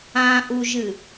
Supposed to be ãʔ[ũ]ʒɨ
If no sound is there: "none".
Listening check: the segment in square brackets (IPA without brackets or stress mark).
u